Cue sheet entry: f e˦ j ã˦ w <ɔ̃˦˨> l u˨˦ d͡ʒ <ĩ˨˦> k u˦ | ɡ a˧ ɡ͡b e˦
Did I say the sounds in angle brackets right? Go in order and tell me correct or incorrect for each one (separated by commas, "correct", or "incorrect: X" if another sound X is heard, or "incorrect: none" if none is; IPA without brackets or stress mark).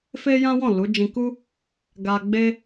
correct, incorrect: ĩ˧